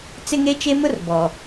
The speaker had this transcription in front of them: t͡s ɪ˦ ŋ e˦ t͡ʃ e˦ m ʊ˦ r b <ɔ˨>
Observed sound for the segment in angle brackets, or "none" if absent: ɔ˨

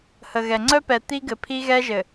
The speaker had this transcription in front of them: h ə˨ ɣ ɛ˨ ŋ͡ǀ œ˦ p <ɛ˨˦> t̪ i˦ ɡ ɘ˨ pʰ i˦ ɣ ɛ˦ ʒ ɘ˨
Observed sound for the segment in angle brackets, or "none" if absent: ɛ˨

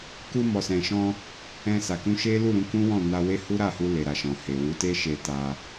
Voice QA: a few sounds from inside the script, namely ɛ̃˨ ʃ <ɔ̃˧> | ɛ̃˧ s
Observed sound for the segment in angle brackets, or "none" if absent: ɔ̃˧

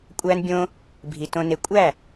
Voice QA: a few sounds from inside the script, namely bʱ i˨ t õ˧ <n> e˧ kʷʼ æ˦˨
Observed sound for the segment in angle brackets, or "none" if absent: n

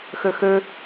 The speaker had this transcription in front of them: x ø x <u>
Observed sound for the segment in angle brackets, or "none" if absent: ø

